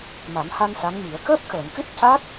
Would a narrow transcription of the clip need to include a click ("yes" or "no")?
no